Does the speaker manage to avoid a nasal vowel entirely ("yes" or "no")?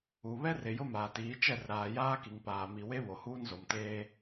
yes